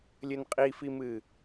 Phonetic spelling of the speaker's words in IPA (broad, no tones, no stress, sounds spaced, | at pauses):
lʲ ɘ n qʼ i f i m ɨ